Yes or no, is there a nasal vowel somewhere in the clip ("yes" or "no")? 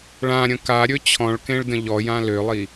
yes